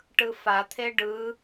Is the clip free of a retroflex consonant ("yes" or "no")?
no